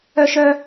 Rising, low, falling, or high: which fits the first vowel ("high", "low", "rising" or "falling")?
high